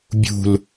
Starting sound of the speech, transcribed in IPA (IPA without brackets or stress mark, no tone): bʲ